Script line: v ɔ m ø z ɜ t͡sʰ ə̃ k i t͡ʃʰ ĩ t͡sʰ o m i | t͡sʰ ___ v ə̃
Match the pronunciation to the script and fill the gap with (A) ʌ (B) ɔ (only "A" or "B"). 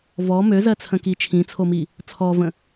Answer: B